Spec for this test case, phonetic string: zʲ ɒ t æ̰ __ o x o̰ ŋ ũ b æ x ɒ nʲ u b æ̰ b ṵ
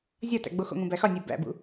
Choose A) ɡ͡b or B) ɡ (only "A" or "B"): A